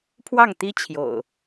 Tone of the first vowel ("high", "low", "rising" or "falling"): falling